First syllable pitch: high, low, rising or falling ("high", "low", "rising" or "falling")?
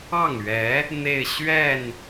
falling